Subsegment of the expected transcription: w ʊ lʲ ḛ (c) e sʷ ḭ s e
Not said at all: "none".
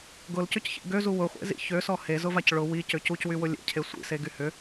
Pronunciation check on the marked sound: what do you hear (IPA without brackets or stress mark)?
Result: cʰ